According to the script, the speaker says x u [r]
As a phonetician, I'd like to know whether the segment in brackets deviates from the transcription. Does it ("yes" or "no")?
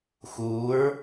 yes